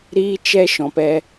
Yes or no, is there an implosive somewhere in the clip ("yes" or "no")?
no